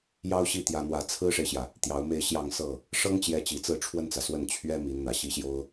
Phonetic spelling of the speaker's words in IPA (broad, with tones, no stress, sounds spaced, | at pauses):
j ɑ˥ ʊ̯ ɕ i˥˩ t̪ j ä˥ n̪ w ä˥ t͡sʰ ɹ̩˥ ʂ e˨ ɪ̯ ɕ j ä˩ | t̪ j ɑ˧˥ ʊ̯ m e˥˧ ɪ̯ ɕ j ɑ˥˧ ŋ s ɤ˥˩ | ʂ ɤ˥ ŋ t͡ɕ j ɛ˧˥ t͡ɕ i˨˩ t͡s ɹ̩˥˧ ʈ͡ʂʰ w ə˥˩ n t͡s ä˩ s w ə˥˩ n t͡ɕʰ ɥ ɛ˥ m i˧˥ n n̪ ä˨˩ ɕ i˥ ɕ j o˥ ʊ̯